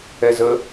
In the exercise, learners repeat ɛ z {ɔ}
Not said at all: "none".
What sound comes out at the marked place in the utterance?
ə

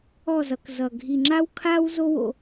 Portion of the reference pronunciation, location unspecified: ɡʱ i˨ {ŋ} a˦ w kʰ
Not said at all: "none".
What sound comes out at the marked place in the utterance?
ŋ͡ǁ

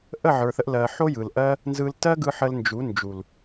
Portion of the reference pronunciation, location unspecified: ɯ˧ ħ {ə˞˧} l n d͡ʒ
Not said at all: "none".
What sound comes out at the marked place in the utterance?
ə˧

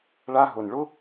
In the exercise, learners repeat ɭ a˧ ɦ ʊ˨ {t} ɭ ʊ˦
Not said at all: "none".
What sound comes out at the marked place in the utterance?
n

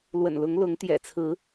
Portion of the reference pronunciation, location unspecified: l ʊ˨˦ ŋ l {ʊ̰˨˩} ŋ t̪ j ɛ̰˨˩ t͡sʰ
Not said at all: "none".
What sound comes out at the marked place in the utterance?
ʊ˨˦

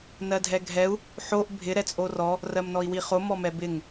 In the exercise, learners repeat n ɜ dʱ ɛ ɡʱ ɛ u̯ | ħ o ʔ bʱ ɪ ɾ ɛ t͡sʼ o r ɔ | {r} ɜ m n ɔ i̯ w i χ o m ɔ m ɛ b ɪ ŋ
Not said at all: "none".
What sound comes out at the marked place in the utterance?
r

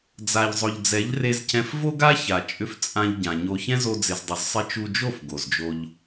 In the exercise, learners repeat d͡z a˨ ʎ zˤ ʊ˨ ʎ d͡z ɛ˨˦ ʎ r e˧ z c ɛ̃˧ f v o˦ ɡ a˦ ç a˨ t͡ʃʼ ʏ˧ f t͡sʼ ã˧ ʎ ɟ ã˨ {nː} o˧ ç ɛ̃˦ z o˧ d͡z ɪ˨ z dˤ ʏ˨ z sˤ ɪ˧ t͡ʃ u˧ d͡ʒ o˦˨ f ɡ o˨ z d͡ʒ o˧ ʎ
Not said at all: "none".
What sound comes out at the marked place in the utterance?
ɲ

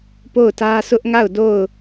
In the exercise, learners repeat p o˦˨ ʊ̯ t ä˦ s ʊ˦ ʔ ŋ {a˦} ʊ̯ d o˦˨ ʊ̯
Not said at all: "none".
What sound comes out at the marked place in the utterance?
a˦˨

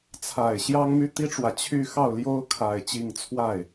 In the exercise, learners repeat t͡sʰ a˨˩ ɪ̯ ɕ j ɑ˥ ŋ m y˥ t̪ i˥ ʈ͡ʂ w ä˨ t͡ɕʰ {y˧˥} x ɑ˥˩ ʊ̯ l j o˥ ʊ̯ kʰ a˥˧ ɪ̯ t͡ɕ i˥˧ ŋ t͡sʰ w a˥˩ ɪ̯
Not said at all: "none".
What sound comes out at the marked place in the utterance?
y˥˧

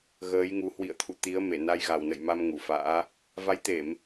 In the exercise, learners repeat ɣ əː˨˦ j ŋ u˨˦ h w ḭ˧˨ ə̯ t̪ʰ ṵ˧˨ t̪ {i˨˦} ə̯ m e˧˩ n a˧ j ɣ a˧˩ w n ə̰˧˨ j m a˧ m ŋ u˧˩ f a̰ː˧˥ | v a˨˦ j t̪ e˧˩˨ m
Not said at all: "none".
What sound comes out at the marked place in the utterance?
i˨˦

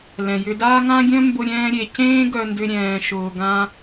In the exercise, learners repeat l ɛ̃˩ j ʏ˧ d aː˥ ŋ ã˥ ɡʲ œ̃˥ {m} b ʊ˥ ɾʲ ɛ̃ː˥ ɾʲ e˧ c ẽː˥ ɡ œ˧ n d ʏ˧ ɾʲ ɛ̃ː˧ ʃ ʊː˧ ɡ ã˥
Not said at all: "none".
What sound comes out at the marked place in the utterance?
m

